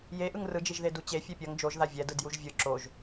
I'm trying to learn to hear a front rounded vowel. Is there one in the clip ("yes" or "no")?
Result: no